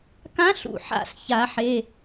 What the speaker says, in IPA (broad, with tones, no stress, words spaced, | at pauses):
kã˧˥ɬṵ˧˩ ħa̰˧˩s ça˨˩˦ħe˩˧˩